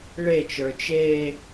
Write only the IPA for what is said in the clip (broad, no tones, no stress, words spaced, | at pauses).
ɭet͡ʃə˞ t͡ʃe